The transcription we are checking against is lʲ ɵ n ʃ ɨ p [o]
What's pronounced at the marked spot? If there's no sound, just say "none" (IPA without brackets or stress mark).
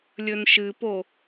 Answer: o